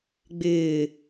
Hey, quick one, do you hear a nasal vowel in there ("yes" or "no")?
no